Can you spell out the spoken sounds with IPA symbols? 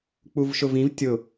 k͡p u v ʃ ʊ v ĩ v tʲ ʊ

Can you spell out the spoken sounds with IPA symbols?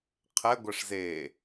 qʰ ɛ ɡʷ ɛ ʂ z eː

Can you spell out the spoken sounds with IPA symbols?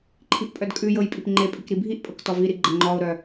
ǃʰ i ʔ pʼ œ d kʼ ʉ j ɤ j pʼ i p ŋ͡ǃ e pʼ i k ɾ i bʱ i ʔ pʼ ɤ k t ɔ v i ɾ i ɡ͡ǃ ɐ ŋ͡ǃ ɔ ʊ̯ ɾ œ

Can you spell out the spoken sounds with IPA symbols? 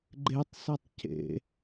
ɡ͡ǃ e tˤ s ɘ tˤ c ḛ

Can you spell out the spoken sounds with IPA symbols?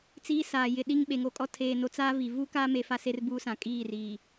t͡s iː˦ s aː˨ j ɪ˨ ɗ i˦ ŋ ɓ e˨ ŋ o˨ kʼ ɔ˦ tʰ eː˨ n o˨ t͡s aː˦ v i˨ v u˦ k aː˦ m e˨ f a˦ s e˦ r b uː˦ s ã˨ kʼ iː˦˨ r iː˨

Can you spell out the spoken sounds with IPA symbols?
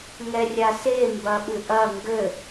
ŋ ɛ rʲ a s e m b ɐ ɓ ɨ ʔ ɐ ŋ ɡ ɘ

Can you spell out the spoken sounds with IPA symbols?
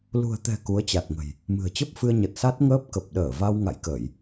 l ṳ˨˩ ə̯ t̪ ɛ̤˨˩ k u˨˦ ə̯ t͡ɕ a˨˩ t̚ ŋ ə̤˨˩ j | m ɨ̤˨˩ ə̯ t͡ɕ ə˦˥ p̚ f ɨ˧ ə̯ ɲ ə˨˩ t̚ s a˦˥ t̚ ŋ əː˦˥ p̚ k ə˨˩ p̚ ɗ əː˧˩ v a˧ w ŋ a̰˧˨ j k əː˧˩˨ j

